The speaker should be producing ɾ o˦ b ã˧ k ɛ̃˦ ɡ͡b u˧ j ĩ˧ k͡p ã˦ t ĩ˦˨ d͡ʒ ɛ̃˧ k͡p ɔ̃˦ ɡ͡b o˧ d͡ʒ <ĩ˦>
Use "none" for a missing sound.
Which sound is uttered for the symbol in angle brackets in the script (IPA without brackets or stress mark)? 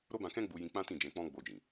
ĩ˨